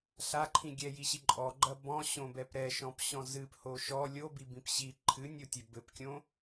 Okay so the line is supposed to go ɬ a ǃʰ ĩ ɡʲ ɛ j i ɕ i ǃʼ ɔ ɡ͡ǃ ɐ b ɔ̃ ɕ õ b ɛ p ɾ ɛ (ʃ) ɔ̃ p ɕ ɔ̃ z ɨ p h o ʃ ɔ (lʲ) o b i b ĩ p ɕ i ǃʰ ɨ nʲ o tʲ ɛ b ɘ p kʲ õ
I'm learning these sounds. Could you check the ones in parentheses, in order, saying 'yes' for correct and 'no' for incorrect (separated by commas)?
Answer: yes, yes